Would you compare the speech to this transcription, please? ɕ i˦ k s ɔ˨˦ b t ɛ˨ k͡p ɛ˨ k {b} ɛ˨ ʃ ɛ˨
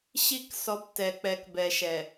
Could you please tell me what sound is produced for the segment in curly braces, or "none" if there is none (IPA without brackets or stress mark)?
b